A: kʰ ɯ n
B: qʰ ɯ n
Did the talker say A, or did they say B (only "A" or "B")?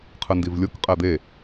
B